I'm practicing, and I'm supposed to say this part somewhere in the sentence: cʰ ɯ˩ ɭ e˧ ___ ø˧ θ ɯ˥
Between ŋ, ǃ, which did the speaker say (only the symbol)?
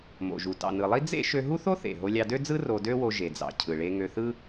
ŋ